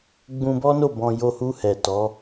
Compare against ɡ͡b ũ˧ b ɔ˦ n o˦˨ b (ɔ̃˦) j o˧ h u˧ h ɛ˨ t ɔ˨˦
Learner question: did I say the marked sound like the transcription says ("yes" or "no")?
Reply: no